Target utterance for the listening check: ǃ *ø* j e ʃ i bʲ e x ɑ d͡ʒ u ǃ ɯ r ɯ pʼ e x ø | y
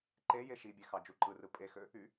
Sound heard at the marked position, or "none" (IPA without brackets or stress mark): e